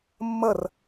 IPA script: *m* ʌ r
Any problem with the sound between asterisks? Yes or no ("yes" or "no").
yes